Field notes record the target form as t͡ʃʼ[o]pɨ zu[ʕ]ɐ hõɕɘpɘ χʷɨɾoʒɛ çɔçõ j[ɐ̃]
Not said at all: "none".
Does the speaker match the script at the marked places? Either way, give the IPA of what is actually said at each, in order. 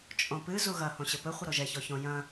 õ, ɣ, ɐ̃

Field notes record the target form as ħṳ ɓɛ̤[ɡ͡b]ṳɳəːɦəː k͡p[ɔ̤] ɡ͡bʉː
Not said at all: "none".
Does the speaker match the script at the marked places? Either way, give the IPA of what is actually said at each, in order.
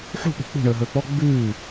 k͡p, ɔ

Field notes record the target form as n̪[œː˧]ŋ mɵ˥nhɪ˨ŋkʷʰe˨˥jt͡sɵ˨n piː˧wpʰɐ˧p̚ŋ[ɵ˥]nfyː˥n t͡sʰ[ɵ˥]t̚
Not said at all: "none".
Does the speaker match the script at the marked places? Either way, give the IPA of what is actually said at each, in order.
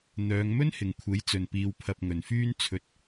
œː˨˧, ɵ˨, ɵ˧

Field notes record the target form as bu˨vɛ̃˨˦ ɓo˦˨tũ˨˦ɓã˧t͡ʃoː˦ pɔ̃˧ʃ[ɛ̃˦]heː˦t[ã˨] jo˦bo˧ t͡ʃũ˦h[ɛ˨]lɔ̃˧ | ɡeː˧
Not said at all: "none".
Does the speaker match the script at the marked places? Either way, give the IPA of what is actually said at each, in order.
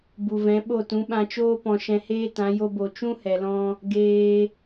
ɛ̃˧, ã˨˦, ɛ˨

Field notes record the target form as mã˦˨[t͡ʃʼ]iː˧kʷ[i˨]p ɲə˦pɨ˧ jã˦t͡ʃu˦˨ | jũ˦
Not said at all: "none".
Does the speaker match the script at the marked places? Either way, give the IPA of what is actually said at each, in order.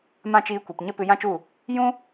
t͡ʃ, i˨

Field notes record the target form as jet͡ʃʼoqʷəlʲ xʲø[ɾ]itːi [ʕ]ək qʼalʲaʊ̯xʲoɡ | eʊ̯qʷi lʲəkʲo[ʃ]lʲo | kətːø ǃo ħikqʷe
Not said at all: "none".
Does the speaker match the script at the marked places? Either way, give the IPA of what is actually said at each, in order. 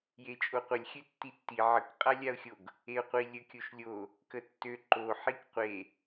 tː, ʕ, ʃ

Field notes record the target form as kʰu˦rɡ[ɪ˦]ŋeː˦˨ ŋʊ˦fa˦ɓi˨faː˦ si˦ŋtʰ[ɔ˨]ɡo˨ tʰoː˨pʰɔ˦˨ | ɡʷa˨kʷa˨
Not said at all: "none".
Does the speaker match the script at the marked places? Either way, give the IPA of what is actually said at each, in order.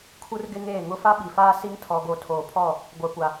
ɪ˦, ɔ˨

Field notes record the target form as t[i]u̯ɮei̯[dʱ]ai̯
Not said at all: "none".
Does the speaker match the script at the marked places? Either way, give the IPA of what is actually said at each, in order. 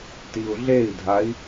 i, dʱ

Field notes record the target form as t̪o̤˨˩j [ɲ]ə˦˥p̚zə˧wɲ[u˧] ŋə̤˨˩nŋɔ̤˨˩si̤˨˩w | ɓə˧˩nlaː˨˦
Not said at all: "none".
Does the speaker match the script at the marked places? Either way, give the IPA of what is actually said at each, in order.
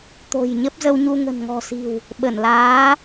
ɲ, u˧

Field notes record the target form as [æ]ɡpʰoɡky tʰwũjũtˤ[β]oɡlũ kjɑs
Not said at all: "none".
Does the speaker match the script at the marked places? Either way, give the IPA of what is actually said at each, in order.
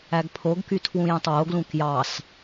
æ, w

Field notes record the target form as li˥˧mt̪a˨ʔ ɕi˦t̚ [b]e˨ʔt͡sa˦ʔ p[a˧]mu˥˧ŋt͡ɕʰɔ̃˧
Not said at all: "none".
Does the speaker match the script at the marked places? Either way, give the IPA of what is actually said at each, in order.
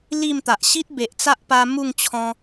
b, a˧

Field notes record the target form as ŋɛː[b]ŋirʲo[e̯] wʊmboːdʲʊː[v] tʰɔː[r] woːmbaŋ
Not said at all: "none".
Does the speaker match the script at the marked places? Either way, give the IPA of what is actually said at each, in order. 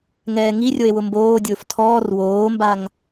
none, e̯, f, r

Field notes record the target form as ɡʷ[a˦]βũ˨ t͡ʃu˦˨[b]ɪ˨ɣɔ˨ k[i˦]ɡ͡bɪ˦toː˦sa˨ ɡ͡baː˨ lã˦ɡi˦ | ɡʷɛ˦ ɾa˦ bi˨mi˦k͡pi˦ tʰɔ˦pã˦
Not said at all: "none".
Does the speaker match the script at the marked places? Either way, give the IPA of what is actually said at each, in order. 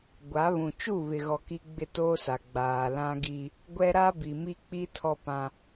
a˨˦, β, i˦

